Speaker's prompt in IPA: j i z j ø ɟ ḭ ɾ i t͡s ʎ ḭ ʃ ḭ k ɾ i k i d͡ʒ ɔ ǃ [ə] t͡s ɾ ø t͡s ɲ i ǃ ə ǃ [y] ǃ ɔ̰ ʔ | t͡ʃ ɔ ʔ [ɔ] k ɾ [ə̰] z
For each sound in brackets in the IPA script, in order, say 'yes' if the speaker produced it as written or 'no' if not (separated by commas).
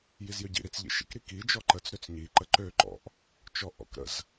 yes, no, no, yes